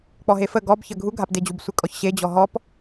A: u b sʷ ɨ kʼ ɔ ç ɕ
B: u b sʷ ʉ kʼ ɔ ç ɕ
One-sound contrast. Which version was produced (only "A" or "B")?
A